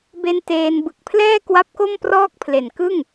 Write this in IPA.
b e˧ n t eː˧ n b ɯ˨˩ k̚ pʰ l ɛː˥˩ k w a˦˥ p̚ k o˥˩ m p r ɔː˥˩ k̚ pʰ l e˨˩ n k ɯ˥˩ ŋ

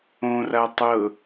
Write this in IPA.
õ r a tˤ ɤ

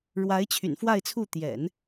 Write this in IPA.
ɻ w a˧˥ ɪ̯ t͡ɕʰ y̰˨˩ n f w a˥˧ ɪ̯ t͡sʰ u˥˩ t̪ j ɛ̰˨˩˦ n

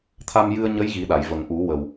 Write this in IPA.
t̪ʰ a˧ m j ɨ˧ ə̯ ɲ ə˧˥ j ɣ i˨˩˦ ɗ a˨˩˨ j v ə˨˩ ŋ ʔ u˨˩˦ w ə˨˩ w

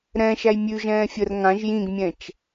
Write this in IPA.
ɾ ɛ̃ ʃ æ j mʲ ʉ ʒ ɛ̃ː fʲ ə r ŋ ã ʒ j ĩ ɡ mʲ ɛ̃ t͡ʃ

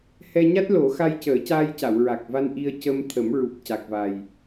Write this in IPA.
h ɛ˧ ɲ a˦˥ t̚ l o˨˩˦ x a˧ j c əː˨˩˦ c aː˧ j c a˨˩˨ w ɹ a˨˩ k̚ v a˧ n ʔ i˧ ə̯ c ə˧ m t̪ʰ ə˨˩˦ m ɹ u˨˩ p̚ c a˨˩ k̚ v a˨˩ j

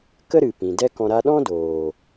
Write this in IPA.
k ə˦ ɾ ɨ˨ p ĩ˨ d ɛ˦ k ɔ̃˧ ɾ a˧ ɗ ɔ̃˦ d oː˨

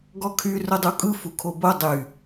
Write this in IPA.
ɡ ɔ kʰ y r ʊ dˤ u kʼ ɯ f u kʰ o b o dˤ y

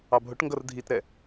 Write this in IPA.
ɑ bʱ ʊ ʈ ŋ ɡ ʌ r dʱ i t ɾ ɛ

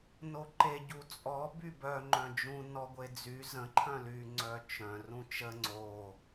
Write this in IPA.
n o ǃ e ɟ u t͡sʼ ɔ b y b œ ŋ͡ǃ œ̃ d͡ʒ ũ n ɔ ɡʷ e d͡z y z ə̃ ǃʰ œ̃ l y ŋ͡ǀ œ t͡ʃ œ̃ r ũ t͡ʃ ə ŋ͡ǀ o

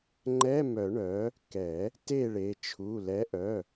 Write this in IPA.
ŋ͡ǃ ɛ˧˥˧ m œ˨˩˦ ɳ œ˨˥ | k ɛ˨˩˦ | t e˥˨ ɭ e˩˧˩ t͡ʃʰ u˩˧˩ l ɛ˨˥ ʔ œ˩˧˩

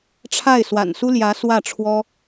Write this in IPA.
ʈ͡ʂʰ a˥˩ ɪ̯ s w a̰˨˩ n s u˥ l j ä˧˥ s w ä˥˩ ʈ͡ʂʰ w ɔ˥

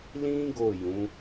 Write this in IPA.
l ĩ˦ ɡ o˦˨ j ũ˨˦

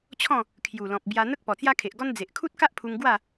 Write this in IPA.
t͡ɕʰ ɔ̃˥˧ | kʰ j u˨˩ l ɔ̃˨ p̚ b j a˧ n̪ ə˦ k̚ p ɔ˨˩ t͡s j a˦ kʰ e˨ ʔ ɡ ɔ˦ n d͡z e˨ ʔ kʰ u˦ t̚ k a˦ ʔ pʰ u˧ ŋ ɡ w a˥˧

